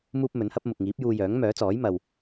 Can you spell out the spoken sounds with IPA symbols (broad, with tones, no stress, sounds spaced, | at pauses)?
m uː˥ p̚ m ɵ˨˥ n h ɐ˥ p̚ m ʊ˨ k̚ ŋ iː˨˥ p̚ j uː˧ j œː˨˥ ŋ m œː˨˥ t͡s ɔː˨˥ j m ɐ˨ w